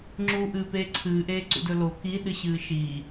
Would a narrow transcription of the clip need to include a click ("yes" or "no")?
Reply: yes